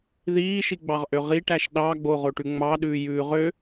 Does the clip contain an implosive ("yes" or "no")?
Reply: yes